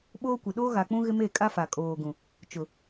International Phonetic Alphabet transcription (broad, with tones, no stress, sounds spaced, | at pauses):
ɓ oː˦ kʷ ɪ˨ ɗ oː˦ ɣ a˨ k͡p ũ˦ ɣ ɪ˦ m e˦˨ kʼ a˦ f a˨ kʼ oː˨ ɡ ũ˨ | t͡ʃ ʊ˨